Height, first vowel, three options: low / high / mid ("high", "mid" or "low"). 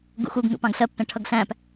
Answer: high